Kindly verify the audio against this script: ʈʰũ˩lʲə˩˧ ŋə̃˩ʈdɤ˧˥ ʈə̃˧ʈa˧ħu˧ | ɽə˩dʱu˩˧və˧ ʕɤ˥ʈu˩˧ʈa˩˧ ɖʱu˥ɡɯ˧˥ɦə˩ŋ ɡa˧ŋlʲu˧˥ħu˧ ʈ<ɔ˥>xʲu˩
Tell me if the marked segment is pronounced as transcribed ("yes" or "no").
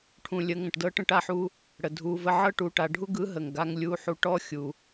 yes